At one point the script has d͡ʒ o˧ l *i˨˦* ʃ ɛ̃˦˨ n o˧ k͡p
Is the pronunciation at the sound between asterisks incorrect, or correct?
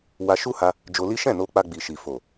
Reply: incorrect